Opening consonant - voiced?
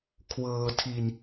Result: no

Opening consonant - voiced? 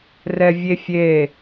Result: yes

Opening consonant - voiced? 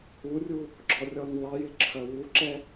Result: yes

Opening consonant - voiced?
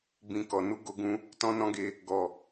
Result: yes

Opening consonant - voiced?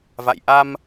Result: yes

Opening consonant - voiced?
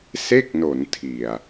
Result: no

